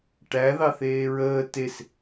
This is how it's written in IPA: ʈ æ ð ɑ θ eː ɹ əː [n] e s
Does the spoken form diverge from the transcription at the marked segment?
yes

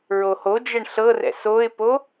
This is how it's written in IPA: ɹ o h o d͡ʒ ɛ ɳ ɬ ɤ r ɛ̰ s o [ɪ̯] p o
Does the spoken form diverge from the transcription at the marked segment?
no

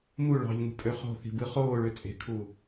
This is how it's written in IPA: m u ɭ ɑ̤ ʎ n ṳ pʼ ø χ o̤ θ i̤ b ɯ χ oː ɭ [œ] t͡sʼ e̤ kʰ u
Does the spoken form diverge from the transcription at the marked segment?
yes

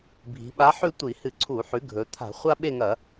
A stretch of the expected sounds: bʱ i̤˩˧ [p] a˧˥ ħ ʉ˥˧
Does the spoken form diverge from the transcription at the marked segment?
yes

